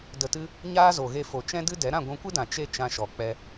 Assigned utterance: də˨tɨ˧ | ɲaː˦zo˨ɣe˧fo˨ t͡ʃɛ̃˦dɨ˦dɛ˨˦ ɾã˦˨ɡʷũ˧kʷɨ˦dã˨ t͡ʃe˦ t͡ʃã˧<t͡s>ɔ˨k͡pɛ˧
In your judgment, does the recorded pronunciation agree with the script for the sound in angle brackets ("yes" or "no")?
no